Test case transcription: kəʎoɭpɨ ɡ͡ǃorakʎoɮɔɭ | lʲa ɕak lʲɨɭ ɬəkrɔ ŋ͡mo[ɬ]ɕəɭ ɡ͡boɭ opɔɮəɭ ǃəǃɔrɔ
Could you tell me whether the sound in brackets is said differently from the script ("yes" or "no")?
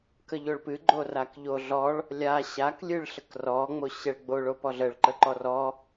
yes